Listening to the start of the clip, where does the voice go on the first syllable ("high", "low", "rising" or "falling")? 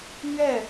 falling